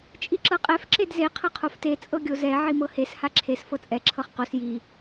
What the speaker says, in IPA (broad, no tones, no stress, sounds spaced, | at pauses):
t͡ʃʼ i ǁ ɤ qʼ ɛ f ǁ e d z e qʰ ɤ qʰ o f t e t͡sʼ ɤ ɡʲ o z ɛ ʕ i m ɤ h e s h a ǁʰ e s f ɤ t͡sʼ ɛ ǁʰ ɤ χ q o s j i